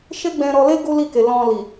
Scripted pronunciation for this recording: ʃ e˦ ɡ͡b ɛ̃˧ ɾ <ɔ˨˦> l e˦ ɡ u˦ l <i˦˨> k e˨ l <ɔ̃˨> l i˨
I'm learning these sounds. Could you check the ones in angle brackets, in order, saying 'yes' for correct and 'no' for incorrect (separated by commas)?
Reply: no, yes, yes